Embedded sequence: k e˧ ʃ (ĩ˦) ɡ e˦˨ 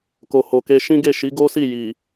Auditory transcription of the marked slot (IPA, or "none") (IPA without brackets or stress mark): ĩ˦